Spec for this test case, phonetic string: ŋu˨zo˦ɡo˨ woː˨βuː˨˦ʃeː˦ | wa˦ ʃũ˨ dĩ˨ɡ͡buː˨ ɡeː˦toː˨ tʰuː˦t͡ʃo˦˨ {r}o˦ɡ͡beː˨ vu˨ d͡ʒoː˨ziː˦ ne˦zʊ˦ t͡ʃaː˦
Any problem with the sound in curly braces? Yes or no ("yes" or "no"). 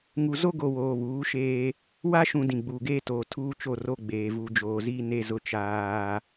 no